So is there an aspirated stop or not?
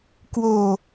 no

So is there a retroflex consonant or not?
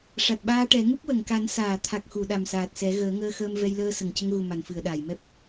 yes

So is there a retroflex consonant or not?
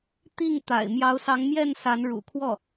yes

